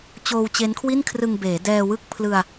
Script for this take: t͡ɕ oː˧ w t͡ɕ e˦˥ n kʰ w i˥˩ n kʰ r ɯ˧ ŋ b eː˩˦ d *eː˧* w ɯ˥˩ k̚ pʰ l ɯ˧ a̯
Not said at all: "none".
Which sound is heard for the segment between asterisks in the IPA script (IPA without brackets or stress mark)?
ɛː˧